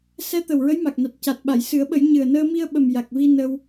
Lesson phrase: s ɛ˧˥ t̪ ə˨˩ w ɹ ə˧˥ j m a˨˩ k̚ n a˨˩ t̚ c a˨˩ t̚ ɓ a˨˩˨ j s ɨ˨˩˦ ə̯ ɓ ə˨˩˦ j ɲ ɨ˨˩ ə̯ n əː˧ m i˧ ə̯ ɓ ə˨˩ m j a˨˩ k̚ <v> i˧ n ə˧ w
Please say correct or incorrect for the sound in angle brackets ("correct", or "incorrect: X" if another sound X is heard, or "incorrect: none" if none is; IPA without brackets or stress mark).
correct